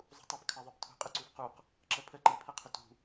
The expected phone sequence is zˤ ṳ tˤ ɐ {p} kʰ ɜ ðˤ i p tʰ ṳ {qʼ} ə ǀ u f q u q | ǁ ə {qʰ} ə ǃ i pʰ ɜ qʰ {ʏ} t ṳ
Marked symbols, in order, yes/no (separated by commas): yes, yes, no, yes